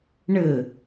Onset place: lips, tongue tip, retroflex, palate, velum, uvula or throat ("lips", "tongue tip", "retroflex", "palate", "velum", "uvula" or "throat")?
retroflex